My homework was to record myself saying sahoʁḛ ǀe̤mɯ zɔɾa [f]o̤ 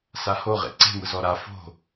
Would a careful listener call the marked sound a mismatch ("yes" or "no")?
no